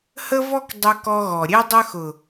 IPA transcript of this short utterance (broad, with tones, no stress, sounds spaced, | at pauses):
h ə˦ v ɔ˦ k dˤ ʊ˧ k ɔ˧ ɣ ɔ˨ ɾʲ e˦ dˤ ə˦ x ʊ˨